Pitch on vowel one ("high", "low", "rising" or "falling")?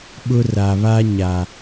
high